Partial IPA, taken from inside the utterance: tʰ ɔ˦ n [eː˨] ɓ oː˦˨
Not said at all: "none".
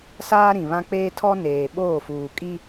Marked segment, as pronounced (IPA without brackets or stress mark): eː˨